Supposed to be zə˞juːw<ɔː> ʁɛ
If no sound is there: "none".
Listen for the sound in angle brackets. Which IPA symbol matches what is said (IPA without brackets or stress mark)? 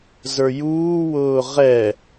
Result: ʊː